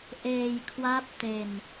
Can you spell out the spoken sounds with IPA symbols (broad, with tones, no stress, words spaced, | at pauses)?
ʔeː˧jkʰwaː˦˥p̚ te˧n